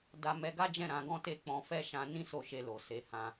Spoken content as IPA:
d a˧ m ɛ˧ ɡ a˦ d͡ʒ ɛ̃˦˨ ɾ ã˧ ɡ ɔ̃˦ t e˦ k͡p ɔ̃˧ f ɛ˦ ʃ ã˧ n ĩ˦ s o˦˨ ʃ e˧ l o˨ s e˨˦ h ã˧

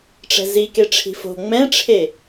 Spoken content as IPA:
ʈ͡ʂ ɛ̤ z i k e ʈ͡ʂʰ i̤ f o̤ ŋ͡m ɛ̃ ʈ͡ʂʰ e

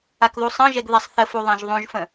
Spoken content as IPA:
a k ð u sˤ ə̃ ʒ ɛ ɡ ð ɛ sˤ θ ə f u ðˤ ã ʒ ðˤ ũ ʒ f ə̃

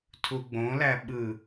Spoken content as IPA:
tʰ u ɡ͡b õ l æ ɓ ɯ

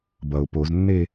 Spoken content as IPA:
b ʌ ʊ̯ p o z nː eː

